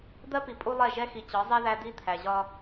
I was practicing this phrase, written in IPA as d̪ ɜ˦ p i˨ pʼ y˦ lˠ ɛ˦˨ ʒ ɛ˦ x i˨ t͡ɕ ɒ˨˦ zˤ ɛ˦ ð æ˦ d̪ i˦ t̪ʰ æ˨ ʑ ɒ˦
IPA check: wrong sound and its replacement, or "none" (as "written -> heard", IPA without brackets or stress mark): y˦ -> u˦